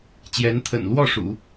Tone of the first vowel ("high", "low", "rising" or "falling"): rising